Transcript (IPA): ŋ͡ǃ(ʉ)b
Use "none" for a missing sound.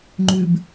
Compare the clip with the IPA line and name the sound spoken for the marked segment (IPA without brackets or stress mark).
ʉ